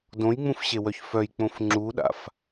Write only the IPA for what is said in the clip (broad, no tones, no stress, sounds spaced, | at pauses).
d õ j ŋ͡m ũ f ɕ e w œ ç f œ j k͡p õ f ŋ͡ǁ u ɗ a̰ f